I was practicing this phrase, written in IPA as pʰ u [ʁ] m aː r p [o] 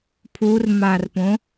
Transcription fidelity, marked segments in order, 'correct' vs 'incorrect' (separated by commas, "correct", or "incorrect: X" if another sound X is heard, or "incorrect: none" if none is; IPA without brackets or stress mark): incorrect: r, incorrect: õ